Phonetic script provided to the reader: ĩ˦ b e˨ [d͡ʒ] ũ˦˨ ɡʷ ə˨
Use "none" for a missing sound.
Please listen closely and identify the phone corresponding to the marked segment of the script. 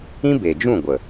d͡ʒ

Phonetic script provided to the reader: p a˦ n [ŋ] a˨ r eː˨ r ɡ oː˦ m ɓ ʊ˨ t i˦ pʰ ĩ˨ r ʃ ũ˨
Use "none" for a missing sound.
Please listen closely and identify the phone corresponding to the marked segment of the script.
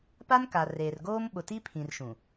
k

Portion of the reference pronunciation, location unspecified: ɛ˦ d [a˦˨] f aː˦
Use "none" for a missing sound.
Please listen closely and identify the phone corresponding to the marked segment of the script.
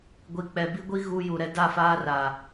a˦˨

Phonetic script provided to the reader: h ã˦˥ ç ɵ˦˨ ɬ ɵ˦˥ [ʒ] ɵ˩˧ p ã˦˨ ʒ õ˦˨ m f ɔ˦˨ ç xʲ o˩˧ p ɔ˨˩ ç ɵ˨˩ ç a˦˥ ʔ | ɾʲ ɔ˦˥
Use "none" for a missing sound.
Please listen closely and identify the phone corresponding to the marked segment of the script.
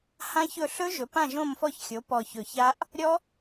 ʒ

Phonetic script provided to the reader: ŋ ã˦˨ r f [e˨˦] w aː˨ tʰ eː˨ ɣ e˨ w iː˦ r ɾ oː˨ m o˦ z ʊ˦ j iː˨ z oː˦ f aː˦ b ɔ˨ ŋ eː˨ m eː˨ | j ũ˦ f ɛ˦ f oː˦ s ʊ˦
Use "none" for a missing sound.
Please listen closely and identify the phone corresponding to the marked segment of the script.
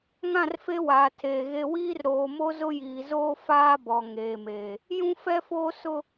e˦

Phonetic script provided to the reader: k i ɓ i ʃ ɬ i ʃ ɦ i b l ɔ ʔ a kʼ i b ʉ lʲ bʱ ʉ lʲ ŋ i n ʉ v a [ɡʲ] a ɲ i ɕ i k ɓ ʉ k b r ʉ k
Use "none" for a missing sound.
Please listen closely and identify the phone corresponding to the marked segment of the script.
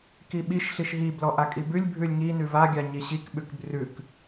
ɡʲ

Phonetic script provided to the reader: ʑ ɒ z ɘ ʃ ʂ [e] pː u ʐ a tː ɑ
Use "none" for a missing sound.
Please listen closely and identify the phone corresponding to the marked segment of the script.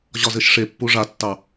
e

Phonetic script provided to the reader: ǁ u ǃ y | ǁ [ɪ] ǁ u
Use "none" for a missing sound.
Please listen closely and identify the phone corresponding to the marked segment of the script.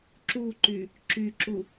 y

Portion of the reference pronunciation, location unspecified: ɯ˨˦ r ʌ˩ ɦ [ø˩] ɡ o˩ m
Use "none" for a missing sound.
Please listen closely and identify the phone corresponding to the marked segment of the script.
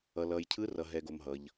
ɛ˩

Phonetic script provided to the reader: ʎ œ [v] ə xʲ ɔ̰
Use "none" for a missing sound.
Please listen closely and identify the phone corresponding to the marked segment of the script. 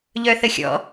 θ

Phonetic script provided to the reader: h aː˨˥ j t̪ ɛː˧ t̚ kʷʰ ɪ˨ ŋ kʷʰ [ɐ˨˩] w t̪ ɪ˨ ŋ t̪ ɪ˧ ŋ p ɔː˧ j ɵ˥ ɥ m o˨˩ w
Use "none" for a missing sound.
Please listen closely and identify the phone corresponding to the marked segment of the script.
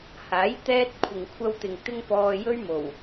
ɐ˧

